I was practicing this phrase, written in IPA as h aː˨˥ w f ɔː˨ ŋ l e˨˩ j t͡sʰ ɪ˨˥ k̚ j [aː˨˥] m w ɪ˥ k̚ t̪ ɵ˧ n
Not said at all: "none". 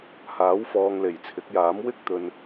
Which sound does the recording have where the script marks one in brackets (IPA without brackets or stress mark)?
aː˨˥